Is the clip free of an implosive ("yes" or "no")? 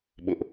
no